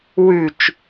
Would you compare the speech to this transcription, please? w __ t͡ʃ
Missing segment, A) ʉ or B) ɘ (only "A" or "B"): A